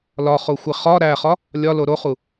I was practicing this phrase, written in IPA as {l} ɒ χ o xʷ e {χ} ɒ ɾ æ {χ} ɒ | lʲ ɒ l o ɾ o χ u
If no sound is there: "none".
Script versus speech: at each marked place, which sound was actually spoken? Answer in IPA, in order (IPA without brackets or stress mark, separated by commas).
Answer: l, χ, χ